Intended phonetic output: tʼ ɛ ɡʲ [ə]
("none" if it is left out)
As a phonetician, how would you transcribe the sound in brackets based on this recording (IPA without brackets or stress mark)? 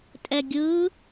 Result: ɯ